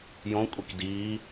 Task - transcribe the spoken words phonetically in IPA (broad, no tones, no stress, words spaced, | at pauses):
jõkʷʼik diː